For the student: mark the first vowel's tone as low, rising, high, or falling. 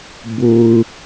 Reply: low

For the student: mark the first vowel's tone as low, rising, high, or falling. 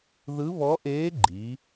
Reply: rising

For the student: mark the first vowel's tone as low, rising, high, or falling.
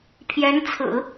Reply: rising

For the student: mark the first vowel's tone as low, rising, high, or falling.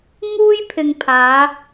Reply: high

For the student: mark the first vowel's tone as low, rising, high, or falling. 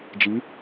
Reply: rising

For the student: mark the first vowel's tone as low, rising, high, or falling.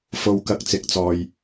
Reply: low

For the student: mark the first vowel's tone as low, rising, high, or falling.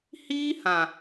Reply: high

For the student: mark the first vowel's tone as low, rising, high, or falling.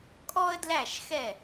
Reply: high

